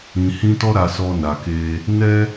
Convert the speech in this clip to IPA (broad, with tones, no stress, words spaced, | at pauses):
ĩ˨hĩ˧tɔ˦ ɾa˧sɔ˧na˨ke˧ | nɛ˦